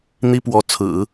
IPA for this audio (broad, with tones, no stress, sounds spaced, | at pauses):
n̪ i˥ p w ɔ˧˥ t͡sʰ ɹ̩˨˩˦